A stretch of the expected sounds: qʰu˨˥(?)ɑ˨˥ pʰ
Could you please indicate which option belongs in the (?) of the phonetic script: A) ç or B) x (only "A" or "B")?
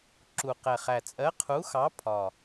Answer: B